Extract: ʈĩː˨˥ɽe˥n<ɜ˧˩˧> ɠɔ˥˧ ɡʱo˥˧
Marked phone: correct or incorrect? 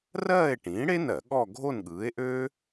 correct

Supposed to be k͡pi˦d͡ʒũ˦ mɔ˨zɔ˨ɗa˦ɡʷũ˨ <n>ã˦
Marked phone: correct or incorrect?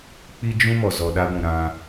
incorrect: ɾ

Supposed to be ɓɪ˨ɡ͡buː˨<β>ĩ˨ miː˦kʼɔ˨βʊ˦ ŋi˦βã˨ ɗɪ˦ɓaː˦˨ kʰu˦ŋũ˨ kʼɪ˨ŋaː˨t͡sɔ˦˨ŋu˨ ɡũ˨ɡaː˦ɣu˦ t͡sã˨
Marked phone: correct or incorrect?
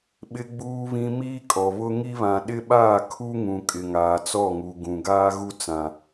correct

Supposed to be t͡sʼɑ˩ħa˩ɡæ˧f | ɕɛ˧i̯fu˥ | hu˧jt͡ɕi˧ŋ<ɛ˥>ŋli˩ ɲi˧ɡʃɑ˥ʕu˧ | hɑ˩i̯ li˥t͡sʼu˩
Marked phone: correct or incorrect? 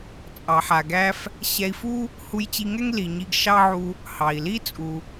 correct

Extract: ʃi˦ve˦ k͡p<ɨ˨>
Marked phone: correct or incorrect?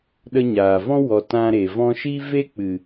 correct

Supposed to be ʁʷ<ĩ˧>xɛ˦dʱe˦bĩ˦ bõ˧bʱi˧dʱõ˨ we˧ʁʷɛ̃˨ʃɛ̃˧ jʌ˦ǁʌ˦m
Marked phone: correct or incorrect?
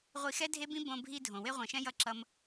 incorrect: i˧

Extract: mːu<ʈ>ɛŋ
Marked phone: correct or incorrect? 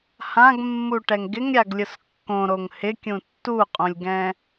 correct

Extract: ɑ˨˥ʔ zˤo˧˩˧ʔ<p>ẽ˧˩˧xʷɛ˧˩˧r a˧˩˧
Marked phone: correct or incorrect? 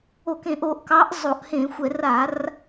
incorrect: h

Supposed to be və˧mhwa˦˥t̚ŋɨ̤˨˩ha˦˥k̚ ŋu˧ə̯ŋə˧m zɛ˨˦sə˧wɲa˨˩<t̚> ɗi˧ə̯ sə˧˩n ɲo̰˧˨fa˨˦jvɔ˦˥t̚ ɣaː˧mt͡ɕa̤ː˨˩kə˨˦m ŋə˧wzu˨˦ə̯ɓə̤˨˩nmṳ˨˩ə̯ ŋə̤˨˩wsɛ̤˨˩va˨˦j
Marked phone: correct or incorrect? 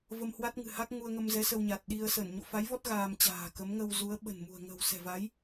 correct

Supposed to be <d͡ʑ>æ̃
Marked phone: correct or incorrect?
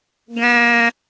incorrect: ɡ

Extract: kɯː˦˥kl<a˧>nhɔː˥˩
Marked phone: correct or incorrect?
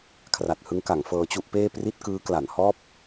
incorrect: a˩˦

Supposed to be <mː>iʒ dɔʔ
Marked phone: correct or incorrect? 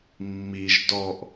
correct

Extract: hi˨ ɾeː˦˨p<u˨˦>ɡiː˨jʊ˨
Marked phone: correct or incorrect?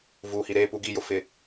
correct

